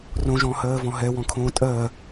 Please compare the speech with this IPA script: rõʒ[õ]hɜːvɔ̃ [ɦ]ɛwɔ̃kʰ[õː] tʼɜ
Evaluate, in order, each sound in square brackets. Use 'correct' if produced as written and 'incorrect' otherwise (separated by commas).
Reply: incorrect, correct, correct